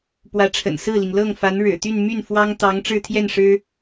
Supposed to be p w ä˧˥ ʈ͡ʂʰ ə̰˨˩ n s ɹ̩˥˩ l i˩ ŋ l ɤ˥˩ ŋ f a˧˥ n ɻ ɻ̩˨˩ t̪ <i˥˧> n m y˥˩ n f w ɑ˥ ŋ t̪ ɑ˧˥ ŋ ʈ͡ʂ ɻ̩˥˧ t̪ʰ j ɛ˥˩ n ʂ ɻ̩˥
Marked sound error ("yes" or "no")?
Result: yes